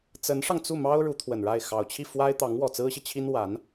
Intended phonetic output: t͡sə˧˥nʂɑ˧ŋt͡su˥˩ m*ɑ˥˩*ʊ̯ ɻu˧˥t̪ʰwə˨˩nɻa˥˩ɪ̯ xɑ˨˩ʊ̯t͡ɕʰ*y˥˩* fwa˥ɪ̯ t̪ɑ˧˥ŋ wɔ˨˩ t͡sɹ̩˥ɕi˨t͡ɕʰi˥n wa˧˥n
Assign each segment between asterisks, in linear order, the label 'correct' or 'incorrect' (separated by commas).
incorrect, incorrect